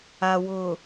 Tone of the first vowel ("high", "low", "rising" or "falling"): low